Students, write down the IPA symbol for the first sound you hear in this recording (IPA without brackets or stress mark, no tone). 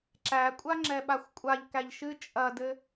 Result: ǁ